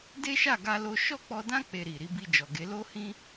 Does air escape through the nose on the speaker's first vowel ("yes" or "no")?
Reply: no